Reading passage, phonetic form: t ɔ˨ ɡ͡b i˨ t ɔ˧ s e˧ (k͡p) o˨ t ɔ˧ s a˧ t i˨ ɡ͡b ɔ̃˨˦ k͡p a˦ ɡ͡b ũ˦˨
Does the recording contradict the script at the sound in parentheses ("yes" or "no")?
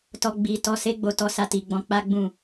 yes